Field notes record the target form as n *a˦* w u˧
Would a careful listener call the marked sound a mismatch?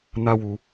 no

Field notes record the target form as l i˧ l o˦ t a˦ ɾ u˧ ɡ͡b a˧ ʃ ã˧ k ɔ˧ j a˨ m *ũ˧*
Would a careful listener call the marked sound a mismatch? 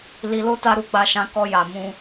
no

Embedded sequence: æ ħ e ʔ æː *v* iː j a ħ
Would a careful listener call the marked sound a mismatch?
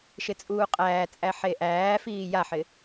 yes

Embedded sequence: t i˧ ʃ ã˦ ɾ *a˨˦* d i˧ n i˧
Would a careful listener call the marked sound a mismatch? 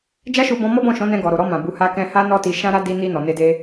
yes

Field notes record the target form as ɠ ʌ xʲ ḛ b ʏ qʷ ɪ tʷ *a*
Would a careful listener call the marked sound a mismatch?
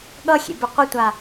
no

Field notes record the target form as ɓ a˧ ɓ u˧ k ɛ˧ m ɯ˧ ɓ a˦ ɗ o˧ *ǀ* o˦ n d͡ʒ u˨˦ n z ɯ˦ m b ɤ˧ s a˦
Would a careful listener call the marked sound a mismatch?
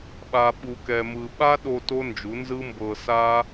yes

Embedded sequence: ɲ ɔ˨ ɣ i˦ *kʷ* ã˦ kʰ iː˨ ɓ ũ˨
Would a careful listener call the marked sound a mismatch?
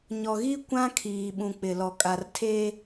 no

